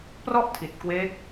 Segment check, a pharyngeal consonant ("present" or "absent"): absent